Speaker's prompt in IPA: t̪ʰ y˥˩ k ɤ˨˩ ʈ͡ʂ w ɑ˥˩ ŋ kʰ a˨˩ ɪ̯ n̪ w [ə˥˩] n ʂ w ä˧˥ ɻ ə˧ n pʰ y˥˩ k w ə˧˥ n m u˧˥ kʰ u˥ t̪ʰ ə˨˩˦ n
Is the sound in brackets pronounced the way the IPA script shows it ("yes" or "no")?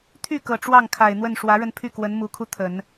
yes